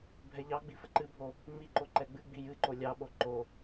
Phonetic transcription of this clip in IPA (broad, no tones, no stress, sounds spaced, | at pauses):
bʱ ɛ ʎ ɑ ɡ͡b i f ə ǃ ɨ bʱ o | ŋ͡m i ǃ o ǃ ɛ ɡ͡b ɨ ɡ͡b i j ɨ ǃ o lʲ ɑ ɓ o ǃ o